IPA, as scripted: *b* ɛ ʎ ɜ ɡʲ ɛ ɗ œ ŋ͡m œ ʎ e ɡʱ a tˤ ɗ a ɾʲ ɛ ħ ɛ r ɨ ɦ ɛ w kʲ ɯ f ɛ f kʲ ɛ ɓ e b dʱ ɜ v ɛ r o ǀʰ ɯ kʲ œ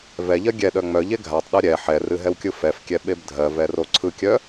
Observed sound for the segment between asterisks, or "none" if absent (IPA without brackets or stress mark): v